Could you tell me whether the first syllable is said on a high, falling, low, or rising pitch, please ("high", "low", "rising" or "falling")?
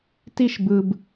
high